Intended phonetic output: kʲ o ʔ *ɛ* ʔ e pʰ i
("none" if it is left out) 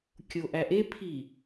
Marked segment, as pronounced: æ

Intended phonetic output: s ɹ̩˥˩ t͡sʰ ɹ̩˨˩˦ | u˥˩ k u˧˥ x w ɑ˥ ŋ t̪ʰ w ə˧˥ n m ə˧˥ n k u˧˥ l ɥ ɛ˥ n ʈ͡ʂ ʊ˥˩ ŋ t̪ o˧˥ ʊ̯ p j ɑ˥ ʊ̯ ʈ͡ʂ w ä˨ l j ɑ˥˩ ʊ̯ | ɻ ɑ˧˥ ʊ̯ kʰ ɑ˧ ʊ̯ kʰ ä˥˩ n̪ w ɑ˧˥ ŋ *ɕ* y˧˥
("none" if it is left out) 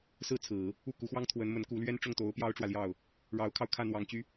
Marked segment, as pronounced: t͡ɕ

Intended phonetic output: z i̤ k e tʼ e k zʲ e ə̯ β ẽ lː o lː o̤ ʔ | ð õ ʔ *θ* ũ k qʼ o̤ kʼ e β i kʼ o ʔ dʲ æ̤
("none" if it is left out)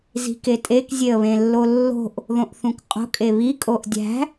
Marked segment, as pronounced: θ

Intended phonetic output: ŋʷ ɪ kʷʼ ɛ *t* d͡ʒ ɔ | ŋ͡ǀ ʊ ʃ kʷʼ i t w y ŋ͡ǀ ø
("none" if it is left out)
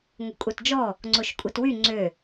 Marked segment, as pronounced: t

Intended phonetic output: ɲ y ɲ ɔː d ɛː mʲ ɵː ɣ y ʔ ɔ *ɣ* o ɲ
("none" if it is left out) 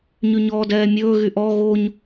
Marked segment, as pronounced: ɣ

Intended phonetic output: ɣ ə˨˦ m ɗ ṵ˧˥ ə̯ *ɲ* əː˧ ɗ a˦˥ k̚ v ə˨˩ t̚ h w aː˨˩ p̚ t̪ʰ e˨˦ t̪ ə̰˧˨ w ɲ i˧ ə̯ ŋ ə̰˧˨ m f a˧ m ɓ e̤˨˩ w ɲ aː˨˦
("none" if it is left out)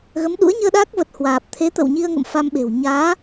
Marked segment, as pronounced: ɲ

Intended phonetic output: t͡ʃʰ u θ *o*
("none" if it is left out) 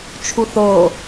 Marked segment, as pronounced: o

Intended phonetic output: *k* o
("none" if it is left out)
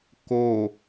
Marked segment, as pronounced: k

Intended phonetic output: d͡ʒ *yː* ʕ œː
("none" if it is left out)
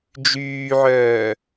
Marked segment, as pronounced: yː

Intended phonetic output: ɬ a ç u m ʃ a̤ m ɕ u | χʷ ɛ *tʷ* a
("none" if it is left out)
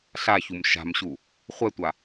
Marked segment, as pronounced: tʷ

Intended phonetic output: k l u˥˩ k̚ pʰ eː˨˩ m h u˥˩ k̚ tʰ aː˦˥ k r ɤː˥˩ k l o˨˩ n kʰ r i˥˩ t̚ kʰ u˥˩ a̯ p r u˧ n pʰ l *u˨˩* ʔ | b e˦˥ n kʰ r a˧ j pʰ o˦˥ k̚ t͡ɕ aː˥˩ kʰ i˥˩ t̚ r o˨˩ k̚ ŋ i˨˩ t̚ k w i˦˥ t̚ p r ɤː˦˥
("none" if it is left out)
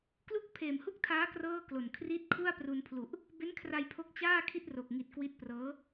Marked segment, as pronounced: u˨˩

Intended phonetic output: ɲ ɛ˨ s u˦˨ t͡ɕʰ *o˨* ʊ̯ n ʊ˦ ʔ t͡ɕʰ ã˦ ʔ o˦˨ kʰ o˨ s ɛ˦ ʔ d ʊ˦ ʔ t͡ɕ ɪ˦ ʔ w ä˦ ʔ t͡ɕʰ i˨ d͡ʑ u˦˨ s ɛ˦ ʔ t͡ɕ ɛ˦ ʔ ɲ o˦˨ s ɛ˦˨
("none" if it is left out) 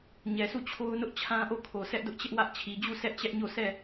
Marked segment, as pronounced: o˦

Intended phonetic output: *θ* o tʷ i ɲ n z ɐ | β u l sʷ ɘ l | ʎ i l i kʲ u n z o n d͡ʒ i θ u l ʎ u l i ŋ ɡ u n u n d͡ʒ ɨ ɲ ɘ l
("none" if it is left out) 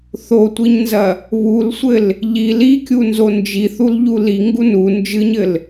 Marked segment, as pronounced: θ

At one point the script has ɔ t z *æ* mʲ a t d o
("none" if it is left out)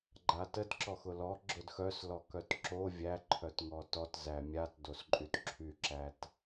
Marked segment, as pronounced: æ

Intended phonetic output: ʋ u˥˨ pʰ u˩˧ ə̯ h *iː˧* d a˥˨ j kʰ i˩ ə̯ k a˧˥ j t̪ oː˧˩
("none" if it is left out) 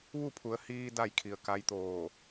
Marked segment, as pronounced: iː˧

